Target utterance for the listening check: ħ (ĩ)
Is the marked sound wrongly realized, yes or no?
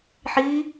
yes